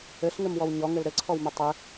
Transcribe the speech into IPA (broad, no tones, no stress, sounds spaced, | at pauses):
ɘ ɬ ŋ ɘ m w ɔ w ɲ ɔ ŋ ɘ l ɾ ɘ ǀʰ ɔ w m ø tˤ ɘ